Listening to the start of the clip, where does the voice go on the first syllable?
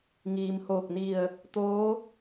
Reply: low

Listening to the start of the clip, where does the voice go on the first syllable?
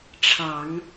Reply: low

